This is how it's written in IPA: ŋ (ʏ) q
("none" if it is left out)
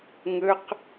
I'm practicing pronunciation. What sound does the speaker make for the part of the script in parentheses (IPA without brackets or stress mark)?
ə